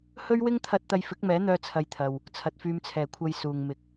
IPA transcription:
h ɵ˥ ɥ w ɪ˥ ŋ t̪ʰ ɐ˧ t̚ t̪ ɐ˧ j f ɪ˨˥ k̚ m ɛː˨˥ n̪ œː˧ t͡sʰ ɐ˧ j t̪ʰ ɐ˨ w | t͡sʰ ɐ˨ t̚ f yː˧ m t͡sʰ ɛː˨ kʷʰ ɐ˧ j s uː˨ ŋ m ɪ˨˥ k̚

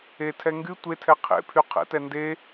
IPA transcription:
e tʰ ɛ ŋ ɡ y tʷ e tʰ ɛ qʰ ḛ pʰ y qʰ ɛ̰ t ɛ n d e

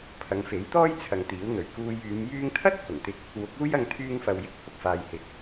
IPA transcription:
pʰ ɐ˨˧ ŋ f e˨˥ j t̪ ɔː˥ j t͡sʰ ɐ˨ ŋ t̪ iː˨˥ w n̪ ɵ˨˩ ɥ k uː˧ j yː˨˧ m j yː˥ ŋ t̪ʰ ɐ˥ t̚ h ʊ˨˩ ŋ t̪ ɪ˧ k̚ | w ʊ˨˥ k̚ uː˥ j ɐ˧ ŋ t̪ʰ yː˧ ŋ f ɐ˨ w j ɪ˥ k̚ h ʊ˨ k̚ f aː˨ j h ɪ˨˥ k̚

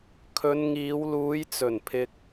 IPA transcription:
kʰ ɵ˨˧ n ŋ iː˨˧ w l uː˨˧ j t͡s ɵ˨˩ n pʰ ɪ˧ k̚

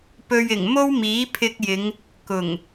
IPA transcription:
p ɵ˧ ɥ ɪ˨˩ ŋ m o˥ w m iː˨˥ pʰ ɪ˧ k̚ j ɪ˨˧ ŋ | k ʊ˨˩ ŋ

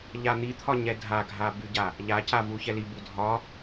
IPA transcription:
ʎ a n̪ i t̪ʰ ɒ ɲ ɛ dʱ a ɡʱ a b y ɟ a | ʎ a c a v u ç ɛ l i b u dʱ ɒ

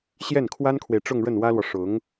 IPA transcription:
ɕ j ɛ˥˩ n kʰ w a˥ n kʰ w e˨ ɪ̯ ʈ͡ʂ ʊ˥˧ ŋ ɻ ə˥˩ n w ä˥ l w ɔ˨ ʂ ʊ˧˥ ŋ

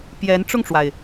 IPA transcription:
p j ɛ˧˥ n ʈ͡ʂ ʊ˥˩ ŋ ʈ͡ʂ w a˩ ɪ̯

